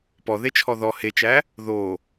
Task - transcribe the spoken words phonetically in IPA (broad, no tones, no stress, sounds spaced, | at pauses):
p ɔ ð e t͡ʃʰ ɔ ð ɔ h e t͡ʃ æ | ð o